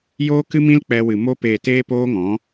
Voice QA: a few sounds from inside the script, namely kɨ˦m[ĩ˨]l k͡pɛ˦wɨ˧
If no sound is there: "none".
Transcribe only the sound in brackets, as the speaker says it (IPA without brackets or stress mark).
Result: ĩ˦